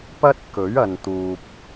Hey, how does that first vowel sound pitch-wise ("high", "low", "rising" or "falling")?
high